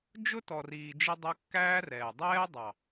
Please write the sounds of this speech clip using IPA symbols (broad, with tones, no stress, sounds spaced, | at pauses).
d͡ʒ ʊ˦ t ɔ˨ r iː˨ d͡ʒ ɪ˧ dˤ u˧ kː æː˦ r ɛː˨ dˤ ɛː˦ dˤ ɑ˨